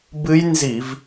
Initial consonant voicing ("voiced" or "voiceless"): voiced